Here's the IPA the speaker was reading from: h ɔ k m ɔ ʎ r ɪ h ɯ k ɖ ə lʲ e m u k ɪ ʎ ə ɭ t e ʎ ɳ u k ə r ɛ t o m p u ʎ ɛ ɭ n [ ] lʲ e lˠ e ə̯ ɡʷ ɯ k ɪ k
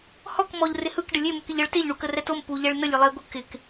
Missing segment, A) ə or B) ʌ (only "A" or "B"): A